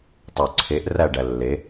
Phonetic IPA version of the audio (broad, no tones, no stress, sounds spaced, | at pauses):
tˤ o ǀʰ e ʔ r æ ɖ æ lː e